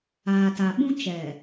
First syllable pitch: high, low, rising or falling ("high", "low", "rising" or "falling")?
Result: low